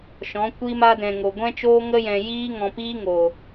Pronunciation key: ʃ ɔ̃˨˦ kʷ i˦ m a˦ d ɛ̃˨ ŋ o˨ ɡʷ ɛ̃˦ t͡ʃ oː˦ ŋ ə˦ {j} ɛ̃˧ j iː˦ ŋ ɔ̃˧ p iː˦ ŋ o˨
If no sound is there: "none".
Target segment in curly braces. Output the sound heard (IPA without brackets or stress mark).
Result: j